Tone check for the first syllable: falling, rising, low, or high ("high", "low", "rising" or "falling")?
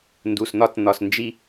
low